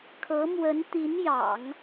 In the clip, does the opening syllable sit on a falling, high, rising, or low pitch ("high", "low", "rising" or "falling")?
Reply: rising